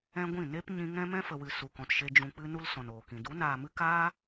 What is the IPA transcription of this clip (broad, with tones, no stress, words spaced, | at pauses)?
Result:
ɛ̃˦ɡʷĩ˦˨ ne˦p ɲĩ˧ ŋɛ̃˦mɛ̃˦ fə˨wɨ˨ su˨kɔ̃˨tʃe˧ d͡ʒũ˨k͡pɨ˧ nu˧l sɔ̃˨noː˨kĩ˨ du˨˦naː˨mɨ˦ kaː˦